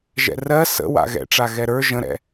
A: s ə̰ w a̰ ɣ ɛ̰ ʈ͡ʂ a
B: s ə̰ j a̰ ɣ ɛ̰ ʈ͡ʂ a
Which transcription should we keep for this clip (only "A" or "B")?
A